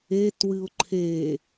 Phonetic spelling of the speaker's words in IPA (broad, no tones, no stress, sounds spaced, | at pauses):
e t w ɨ ʊ̯ ǃʰ e